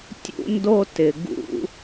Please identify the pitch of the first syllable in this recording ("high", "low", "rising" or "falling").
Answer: high